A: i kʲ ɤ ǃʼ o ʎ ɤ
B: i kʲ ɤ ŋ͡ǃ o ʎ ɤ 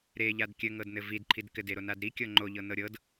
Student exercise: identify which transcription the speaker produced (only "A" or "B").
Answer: B